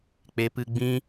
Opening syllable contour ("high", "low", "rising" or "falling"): rising